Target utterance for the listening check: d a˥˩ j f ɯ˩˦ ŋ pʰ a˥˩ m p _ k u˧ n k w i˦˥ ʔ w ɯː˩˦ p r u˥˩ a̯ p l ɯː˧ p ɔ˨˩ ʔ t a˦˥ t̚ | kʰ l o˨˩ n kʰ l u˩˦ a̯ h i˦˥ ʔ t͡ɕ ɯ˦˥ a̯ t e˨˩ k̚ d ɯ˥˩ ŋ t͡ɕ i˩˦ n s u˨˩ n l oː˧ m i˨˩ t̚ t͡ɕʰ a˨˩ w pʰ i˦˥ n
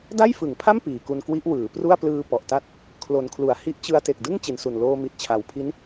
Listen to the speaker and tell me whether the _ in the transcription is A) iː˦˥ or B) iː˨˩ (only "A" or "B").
B